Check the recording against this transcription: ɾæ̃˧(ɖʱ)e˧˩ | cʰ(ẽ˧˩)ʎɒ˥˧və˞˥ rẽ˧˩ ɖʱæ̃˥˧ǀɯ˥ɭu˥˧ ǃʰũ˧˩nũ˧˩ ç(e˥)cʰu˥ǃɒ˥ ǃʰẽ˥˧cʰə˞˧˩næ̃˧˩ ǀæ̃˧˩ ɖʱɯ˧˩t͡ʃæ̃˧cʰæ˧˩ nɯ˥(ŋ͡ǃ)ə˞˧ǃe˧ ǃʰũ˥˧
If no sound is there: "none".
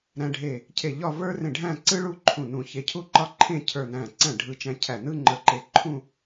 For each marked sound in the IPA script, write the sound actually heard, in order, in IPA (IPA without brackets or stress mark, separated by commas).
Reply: ɖʱ, e˧˩, e˧, ŋ͡ǃ